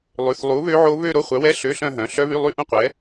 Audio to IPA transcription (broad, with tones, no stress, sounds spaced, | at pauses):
lˠ ʉ˩˧˩ θ lˠ u˨˥ β ø˦˥ ʕ o˦˥ β ø˥˧ ɾ o˧˥˧ χʷ œ˨˥ w ɛ˧˥˧ ɬ ø˧˥˧ ɬ œ̃˥˧ ɦ œ̃˩˧˩ ɬ œ˦˥ β y˧˥˧ lˠ y˥˧ ʔ ũ˥˧ qʷ ɛ˨˥